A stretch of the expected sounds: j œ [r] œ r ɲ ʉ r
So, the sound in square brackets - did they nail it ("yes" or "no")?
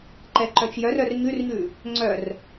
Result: yes